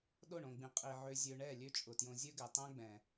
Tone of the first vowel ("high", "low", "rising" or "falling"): falling